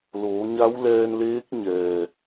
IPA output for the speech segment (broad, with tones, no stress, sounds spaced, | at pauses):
l oː˩˧ ɲ a˧˥ w l ɛː˧ n l eː˧˥ k̚ ɲ ɛː˩